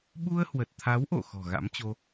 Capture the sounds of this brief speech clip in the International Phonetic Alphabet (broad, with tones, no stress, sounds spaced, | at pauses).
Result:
ɓ u˧ ə̯ h w ə˨˩ t̚ t̪ʰ a˨˦ w ʔ o̰˧˨ x ɔ̤˨˩ ɣ a̰˧˥ m t͡ɕ o˧